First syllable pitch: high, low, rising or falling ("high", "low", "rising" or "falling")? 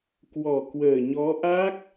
low